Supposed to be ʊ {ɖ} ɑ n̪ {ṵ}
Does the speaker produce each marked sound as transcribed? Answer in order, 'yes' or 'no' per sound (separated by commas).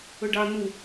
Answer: yes, no